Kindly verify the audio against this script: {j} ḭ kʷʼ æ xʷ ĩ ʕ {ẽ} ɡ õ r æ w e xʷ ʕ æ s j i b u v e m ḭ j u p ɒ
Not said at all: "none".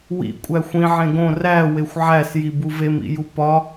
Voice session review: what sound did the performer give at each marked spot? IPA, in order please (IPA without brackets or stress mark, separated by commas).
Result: w, ẽ